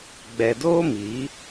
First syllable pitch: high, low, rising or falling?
low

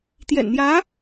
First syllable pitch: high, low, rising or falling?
low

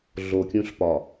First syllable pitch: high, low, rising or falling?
low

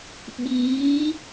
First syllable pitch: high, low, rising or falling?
rising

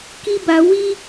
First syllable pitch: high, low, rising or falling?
high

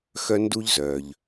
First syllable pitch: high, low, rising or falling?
high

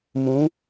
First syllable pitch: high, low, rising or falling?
rising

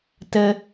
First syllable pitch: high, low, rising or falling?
high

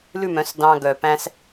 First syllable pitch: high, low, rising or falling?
falling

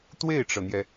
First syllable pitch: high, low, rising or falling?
falling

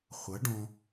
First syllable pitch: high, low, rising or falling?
rising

